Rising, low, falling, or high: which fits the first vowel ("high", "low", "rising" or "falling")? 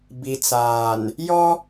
low